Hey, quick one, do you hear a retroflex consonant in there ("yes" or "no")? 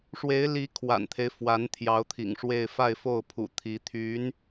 yes